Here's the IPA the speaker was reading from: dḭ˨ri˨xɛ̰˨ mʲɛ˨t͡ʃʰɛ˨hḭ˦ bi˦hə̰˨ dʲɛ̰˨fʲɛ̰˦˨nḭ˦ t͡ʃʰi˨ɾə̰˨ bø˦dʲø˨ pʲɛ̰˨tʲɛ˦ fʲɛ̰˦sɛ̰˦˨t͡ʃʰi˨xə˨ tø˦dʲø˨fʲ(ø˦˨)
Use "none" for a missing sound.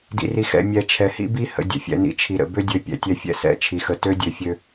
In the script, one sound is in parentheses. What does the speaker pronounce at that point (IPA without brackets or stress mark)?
ø˦